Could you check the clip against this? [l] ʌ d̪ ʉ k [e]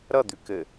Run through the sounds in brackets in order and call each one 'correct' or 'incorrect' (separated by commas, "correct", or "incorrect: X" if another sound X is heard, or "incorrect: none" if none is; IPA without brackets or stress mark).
incorrect: ɾ, incorrect: ɘ